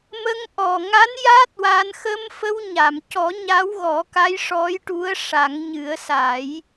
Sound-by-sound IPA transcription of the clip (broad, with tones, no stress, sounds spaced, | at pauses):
m ə˧ ŋ ʔ ɔ˨˩ ŋ a˧˥ n j a˦˥ t̚ w a˧ n x ə˧ m f ə˧ w ɲ a˨˩˨ m c ɔ˨˩˦ ɲ a˧˥ w ɣ ɔ˨˩˦ k a˧˥ j ʂ ɔ˧˥ j ʈ u˧˥ ə̯ ʂ a˨˩˦ ŋ ɲ ɨ˨˩˦ ə̯ s a˨˩˦ j